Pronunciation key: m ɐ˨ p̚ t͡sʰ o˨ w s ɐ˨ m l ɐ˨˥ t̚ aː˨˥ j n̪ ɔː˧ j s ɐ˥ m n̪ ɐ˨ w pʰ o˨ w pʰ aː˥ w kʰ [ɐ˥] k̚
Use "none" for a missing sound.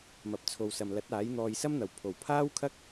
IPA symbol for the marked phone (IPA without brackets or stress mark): ɐ˥